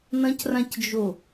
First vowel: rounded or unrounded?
unrounded